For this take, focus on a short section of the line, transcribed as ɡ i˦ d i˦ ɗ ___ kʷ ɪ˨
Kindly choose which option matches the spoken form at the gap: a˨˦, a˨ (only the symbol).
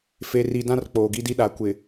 a˨˦